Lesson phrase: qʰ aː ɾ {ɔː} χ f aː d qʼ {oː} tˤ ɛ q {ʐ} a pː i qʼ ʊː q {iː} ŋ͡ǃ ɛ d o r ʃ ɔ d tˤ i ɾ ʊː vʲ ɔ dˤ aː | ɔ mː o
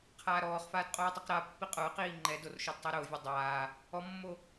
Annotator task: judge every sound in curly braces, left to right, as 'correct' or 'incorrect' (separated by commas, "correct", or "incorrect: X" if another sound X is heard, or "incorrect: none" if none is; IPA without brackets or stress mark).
correct, correct, incorrect: ɾ, correct